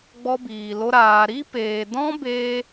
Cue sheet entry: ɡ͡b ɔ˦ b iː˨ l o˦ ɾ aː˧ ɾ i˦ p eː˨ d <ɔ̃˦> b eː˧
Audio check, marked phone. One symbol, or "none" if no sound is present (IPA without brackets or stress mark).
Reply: ɔ̃˦